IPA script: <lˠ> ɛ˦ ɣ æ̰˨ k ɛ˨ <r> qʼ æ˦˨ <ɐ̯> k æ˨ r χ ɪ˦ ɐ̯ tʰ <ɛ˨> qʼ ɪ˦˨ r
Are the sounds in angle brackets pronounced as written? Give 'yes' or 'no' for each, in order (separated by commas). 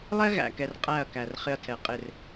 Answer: yes, yes, yes, yes